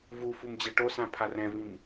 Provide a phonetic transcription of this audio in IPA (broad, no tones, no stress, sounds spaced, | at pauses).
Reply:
v u f u m d͡ʑ ɛ ʈ o s ã pʰ a r ɛ̃ v ĩ m